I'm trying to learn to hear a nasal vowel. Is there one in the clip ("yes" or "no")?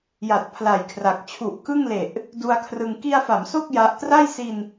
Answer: no